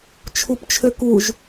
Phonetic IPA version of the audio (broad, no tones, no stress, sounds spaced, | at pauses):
t͡ʃʰ u p t͡ʃʰ ø k u ʒ